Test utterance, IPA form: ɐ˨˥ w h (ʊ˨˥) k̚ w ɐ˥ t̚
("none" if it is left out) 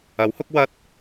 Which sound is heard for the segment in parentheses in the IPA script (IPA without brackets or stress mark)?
ʊ˨˥